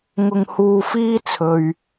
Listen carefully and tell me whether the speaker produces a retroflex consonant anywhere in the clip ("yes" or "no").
no